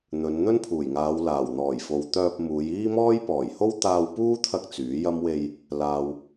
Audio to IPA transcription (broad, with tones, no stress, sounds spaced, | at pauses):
n̪ ɵ˨˧ n n̪ ɵ˥ n pʰ uː˨˩ j ŋ aː˨˧ w l aː˨˩ w n̪ ɔː˨˩ j f o˨ w t̪ œː˧ p̚ m uː˨˧ j iː˥ m ɔː˥ j p ɔː˨˩ j h o˥ w t̪ aː˧ w p uː˥ t̪ʰ ɐ˧ k̚ t͡s yː˨˥ j ɐ˥ m w e˧ j | l aː˨ w